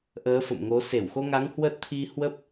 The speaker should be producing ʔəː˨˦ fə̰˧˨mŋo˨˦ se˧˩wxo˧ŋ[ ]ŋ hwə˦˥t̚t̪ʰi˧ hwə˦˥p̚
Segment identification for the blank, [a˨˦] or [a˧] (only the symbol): a˨˦